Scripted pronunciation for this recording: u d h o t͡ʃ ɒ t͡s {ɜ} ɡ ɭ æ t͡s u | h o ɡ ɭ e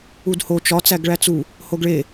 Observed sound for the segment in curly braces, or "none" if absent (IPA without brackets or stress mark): æ